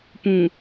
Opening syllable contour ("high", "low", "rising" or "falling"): low